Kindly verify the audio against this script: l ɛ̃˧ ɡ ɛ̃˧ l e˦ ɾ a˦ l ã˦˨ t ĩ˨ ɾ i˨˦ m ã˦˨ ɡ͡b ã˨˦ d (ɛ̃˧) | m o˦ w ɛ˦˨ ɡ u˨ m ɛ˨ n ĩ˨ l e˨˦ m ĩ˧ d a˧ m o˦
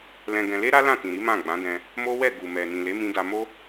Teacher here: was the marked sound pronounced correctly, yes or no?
yes